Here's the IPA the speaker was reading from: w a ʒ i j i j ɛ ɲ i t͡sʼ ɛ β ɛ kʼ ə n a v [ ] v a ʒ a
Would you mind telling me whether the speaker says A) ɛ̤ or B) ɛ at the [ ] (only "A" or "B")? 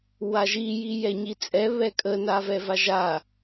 B